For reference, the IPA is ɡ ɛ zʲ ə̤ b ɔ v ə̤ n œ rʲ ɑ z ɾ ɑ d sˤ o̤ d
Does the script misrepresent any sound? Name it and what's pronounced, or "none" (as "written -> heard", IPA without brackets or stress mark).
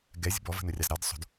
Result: none